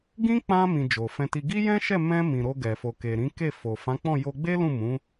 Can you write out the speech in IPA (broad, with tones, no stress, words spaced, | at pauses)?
ɡĩ˦k͡pã˧mĩ˨ d͡ʒo˨fɛ̃˧ti˧ ɡi˦jɛ̃˦ʃɛ˦˨ mɛ̃˧ mĩ˨ɾo˧ɡɛ˨ fo˨ke˨ ɾĩ˨˦ke˦˨fo˨ fã˨˦k͡pɔ̃˦˨jo˧ ɡ͡be˦lũ˦˨mũ˨˦